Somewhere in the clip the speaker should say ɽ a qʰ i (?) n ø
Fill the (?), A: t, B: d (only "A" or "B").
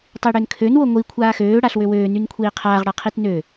A